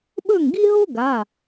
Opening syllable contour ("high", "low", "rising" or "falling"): falling